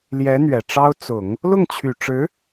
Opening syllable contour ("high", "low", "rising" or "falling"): rising